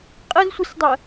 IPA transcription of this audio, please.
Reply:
qʼ ɐ z sʷ i s dˤ ɜ

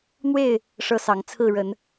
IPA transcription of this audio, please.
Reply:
n̪ w e˥˨ ɪ̯ | ʂ ɤ˦ s ɑ˨˦ ŋ t͡sʰ ɹ̩˥˨ ɻ ə˨˦ n

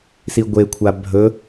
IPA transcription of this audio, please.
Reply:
s i ɡʷ e kʷʰ a bʱ ɵ

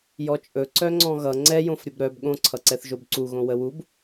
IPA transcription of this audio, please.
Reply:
j ɔ t͡ʃʼ ɵ ǀ œ ŋ͡ǀ ɔ̃ ɣ ʌ ŋ͡ǀ ɛ j õ f ɾʲ ə b ɾ œ b ɠ õ ǀʰ ʌ ǀ ɛ θ ʒ o b ǀ u ɣ õ w ə w u b

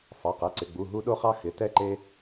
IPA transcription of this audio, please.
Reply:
f ɑ˩˧˩ q ɛ˩˧˩ ǀ ɪ˩˧˩ ɡ͡b u˩˧˩ ɦ u˧ ɗ o˧ χ ɑ˧ x ɪ˩˧˩ t ɛ˧ ǃ e˧

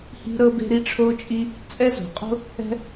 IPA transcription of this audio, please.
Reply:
h i̤˥ ɾ ɤ˥ b e̤˥ ɾ i˥ ʈ͡ʂʰ o˥ t͡ʃʼ i˥ | t͡sʼ ɛ˥ z o̤˧ qʼ o̤˥ | ɛ̤˥

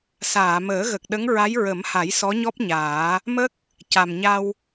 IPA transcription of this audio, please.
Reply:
s aː˨˩˨ m əː˨˩˦ ɣ ə˨˩ k̚ ɗ ə˧˥ ŋ ɹ a˧˥ j ɹ ə˨˩˦ m h a˨˩˦ j s ɔ˧˥ ɲ ɔ˦˥ p̚ ɲ aː˨˩˦ | m ə˦˥ k̚ | c a˨˩ m ɲ a˧ w

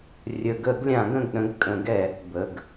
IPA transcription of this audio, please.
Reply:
rʲ ə˨˩˦ ɡ ə˨˩˦ ɡ lʲ ã˨˩˦ ɡ ə̃˩˧˩ ɡ ɗ ə̃˨˥ ɡ kʼ ə̃˨˩˦ ɡ ɛ˨˩˦ | b ə˩˧˩ ɡ

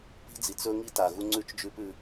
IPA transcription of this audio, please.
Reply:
p i̤˦ d͡z i˨ t͡s ɵ˦ ŋ i˦ t a˨ ɣ u˦ ŋ͡ǀ ʉ˦ t͡ʃ d͡ʒ ʉ˦ p ʉ˧

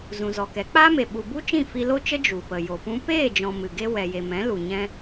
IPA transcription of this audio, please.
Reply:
z ũ˨ z ɔ˨ k ɛ˨˦ k͡p aː˦ m e˨ ɓ u˨ b u˦ t͡ʃ ĩ˦˨ f i˧ l o˦ t͡ʃ ə˦ d͡ʒ u˨ p ə˨ j o˨ p ũ˦ p eː˦˨ d͡ʒ ɔ̃˨ m ɨ˨ ɡ e˦ w ɛ˨ j e˨ m ɛ̃˨˦ l u˨ ɲ ɛ̃˧

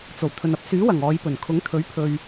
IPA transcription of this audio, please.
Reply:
t͡s o˨˩ w t̪ʰ ɵ˨ n ɐ˥ p̚ s yː˨˥ w ɐ˨˩ ŋ ɔː˨˧ j p ɵ˨˩ n kʰ ʊ˨˥ ŋ t̪ʰ ɵ˨˥ ɥ pʰ ɵ˨ ɥ

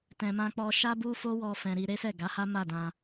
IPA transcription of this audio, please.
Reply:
t ɛ̃˨ m ã˧ k͡p ɔ˧ ʃ a˦ b u˦ f o˦ w ɔ˧ f ɛ̃˨ ɾ i˧ ɾ e˦ s ɛ˦˨ ɡ a˨˦ h a˦ m a˦˨ d ã˧

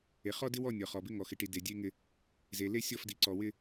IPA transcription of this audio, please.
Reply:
e˨ χ ɔ˦ d ɪ˦ w ɔ˦˨ nʲ ɔ˨ χ ɔ˨ b ɪ˦ ŋ ɔ˨ x ɪ˨ ʈ i˨ d e˨ dʲ e˦ ŋ ɪ˦ | z e˨ l e˦ sʲ ɔ˦˨ f d i˨ ǀ ɔ˨ w ɪ˦

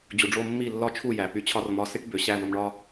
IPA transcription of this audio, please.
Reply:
d͡ʑ u˨ ɖ͡ʐ o˧ mː i˦˨ lː ɒ˦ t͡ʃʰ u˦˨ j æ˨ p y˧ t͡ɕʰ ɒ˦ r m ɒ˨˦ s i˦ ʈ b ø˨ ɕ æ˦˨ v o˧ m ɳ ɒ˦

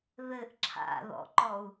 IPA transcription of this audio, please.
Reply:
ð ɘ ʔ ǁʰ a̰ ð ɔ̰ ǃ ɔ u̯

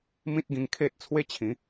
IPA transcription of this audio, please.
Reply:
m ĩ˦ t̚ ɡ ĩ˧ ŋ kʰ e˦ t̚ t͡sʰ w e˦ t͡ɕʰ ĩ˨˦

